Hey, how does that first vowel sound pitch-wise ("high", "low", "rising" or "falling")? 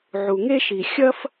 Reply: low